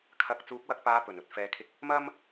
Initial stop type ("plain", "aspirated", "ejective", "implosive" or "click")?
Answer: aspirated